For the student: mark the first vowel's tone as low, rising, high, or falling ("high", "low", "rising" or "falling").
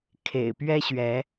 low